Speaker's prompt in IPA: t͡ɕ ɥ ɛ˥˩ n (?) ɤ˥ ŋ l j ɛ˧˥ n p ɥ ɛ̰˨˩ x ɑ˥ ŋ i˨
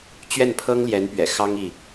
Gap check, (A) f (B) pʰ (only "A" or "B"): B